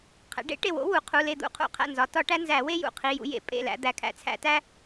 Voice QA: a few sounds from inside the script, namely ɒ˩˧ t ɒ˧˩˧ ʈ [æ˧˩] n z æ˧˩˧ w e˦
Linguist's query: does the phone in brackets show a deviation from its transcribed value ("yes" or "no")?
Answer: yes